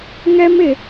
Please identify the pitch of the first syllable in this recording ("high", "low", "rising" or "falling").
high